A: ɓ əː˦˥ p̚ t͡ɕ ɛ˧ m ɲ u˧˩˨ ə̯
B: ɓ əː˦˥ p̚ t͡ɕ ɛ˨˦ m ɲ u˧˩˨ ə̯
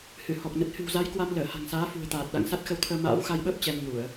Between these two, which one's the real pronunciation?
A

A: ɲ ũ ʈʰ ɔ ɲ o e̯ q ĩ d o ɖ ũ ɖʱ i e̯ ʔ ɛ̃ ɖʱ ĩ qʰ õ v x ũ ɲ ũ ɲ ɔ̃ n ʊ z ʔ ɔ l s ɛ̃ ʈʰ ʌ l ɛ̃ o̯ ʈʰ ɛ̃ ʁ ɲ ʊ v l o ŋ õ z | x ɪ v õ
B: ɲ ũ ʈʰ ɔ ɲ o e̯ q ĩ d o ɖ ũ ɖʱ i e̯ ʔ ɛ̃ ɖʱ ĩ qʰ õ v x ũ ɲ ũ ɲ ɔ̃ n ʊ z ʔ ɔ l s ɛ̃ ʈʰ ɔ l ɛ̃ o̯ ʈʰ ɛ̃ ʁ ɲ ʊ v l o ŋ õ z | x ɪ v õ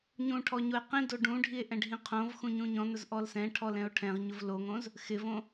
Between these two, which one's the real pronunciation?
B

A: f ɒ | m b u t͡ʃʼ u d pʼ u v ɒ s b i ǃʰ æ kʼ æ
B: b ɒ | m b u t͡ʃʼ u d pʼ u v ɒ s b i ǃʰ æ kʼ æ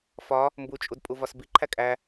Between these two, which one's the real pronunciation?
A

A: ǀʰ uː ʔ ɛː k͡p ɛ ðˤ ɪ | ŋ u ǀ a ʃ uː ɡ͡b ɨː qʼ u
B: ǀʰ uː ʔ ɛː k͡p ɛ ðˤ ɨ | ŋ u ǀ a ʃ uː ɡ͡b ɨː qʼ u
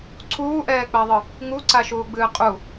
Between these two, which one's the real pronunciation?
B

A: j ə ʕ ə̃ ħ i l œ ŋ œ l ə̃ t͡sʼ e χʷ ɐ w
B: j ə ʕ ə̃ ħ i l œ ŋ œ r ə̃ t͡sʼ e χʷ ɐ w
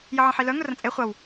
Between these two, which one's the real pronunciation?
B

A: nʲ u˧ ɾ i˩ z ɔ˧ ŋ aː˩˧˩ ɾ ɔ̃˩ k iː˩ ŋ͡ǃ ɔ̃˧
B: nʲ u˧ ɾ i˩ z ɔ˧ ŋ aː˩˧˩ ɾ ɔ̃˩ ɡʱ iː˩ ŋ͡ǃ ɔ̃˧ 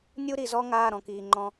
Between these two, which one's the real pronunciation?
A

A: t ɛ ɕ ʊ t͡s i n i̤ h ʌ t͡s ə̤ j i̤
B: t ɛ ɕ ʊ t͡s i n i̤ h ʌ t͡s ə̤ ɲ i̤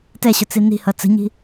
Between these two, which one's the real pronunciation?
B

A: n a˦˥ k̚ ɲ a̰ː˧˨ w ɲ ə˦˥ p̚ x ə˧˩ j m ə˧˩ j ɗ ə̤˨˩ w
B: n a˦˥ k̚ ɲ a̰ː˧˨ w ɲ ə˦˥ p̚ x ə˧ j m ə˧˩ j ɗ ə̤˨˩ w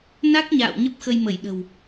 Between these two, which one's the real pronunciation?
B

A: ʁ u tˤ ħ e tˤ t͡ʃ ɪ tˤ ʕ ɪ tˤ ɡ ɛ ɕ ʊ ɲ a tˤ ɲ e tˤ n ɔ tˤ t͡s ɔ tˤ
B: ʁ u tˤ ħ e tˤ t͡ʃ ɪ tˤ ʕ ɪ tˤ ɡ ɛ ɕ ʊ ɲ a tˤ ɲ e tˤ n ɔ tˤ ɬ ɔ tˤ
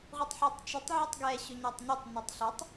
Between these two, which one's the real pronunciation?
B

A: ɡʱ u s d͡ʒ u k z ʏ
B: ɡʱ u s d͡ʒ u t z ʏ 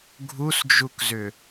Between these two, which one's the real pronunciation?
A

